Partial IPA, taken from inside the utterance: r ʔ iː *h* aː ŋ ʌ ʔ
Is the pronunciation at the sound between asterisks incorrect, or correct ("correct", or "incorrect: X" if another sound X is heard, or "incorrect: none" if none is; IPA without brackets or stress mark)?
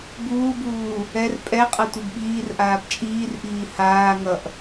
correct